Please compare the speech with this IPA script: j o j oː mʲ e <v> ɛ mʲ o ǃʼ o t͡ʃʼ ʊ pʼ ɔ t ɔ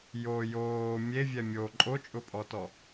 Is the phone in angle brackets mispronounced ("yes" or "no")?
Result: yes